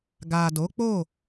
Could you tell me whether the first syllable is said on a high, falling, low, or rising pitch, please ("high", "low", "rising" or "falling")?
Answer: low